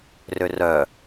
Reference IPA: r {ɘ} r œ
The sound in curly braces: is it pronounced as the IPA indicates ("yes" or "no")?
no